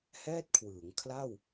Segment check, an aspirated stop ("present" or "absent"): present